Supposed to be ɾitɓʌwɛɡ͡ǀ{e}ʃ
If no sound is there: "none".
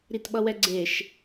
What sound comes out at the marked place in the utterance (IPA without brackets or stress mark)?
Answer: e